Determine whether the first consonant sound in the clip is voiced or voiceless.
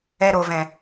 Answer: voiced